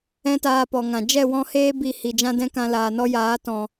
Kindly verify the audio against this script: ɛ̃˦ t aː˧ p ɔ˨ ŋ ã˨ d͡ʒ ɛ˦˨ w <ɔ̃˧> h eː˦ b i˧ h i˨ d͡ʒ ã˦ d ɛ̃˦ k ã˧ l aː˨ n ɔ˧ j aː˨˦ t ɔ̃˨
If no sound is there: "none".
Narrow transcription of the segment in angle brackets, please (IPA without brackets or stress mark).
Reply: ɔ̃˧